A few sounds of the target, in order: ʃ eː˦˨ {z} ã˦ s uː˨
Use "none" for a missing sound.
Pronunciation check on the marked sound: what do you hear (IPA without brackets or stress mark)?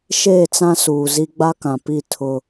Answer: t͡s